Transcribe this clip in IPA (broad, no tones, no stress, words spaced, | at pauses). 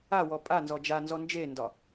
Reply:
awɔ pʼanzɔ d͡ʒanzɔ nd͡ʒendɒ